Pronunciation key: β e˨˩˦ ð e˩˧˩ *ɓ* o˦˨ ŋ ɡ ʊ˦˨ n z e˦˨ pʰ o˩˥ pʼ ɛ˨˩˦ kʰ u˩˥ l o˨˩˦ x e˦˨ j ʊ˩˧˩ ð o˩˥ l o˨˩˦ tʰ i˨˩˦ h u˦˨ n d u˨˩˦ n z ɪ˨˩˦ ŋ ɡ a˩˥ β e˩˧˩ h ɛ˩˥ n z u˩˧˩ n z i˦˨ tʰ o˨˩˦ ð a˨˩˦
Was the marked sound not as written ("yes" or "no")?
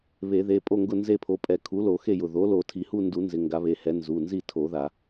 yes